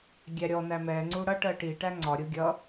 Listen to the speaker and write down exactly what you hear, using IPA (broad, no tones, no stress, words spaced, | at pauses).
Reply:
ɡʲæɾʲɔnæ mɛŋ͡ǀu ɽʌʈɜ ʈi ʈæŋ͡ǀɒɾʲu ɡʲʌ